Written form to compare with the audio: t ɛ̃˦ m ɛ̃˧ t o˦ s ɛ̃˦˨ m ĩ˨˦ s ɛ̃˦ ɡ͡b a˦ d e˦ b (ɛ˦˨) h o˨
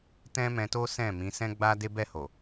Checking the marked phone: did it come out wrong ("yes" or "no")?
no